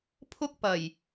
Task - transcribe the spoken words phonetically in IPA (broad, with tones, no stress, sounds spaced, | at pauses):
pʰ ʊ˥ k̚ p ɐ˨˩ j